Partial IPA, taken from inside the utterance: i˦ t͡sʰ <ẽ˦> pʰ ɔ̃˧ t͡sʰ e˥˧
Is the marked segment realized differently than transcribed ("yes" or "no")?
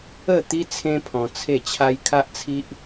no